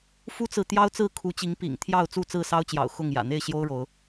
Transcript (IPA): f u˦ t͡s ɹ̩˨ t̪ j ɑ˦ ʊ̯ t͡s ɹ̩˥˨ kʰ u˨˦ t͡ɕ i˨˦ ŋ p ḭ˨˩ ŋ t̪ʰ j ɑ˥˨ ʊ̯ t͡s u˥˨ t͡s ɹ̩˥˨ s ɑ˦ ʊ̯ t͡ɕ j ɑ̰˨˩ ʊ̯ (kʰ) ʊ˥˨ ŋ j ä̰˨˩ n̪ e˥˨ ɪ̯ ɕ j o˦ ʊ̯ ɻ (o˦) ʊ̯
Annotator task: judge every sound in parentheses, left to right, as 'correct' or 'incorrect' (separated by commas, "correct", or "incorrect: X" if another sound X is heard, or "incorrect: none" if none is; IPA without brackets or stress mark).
incorrect: x, incorrect: o˨˦